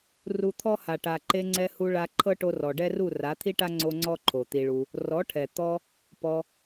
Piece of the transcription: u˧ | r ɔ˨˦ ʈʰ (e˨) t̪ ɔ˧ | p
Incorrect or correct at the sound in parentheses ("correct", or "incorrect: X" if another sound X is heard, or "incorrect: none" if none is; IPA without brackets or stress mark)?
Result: incorrect: ɛ˨